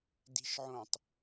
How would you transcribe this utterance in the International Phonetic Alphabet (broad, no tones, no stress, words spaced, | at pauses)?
di̤ʃʕõtˤ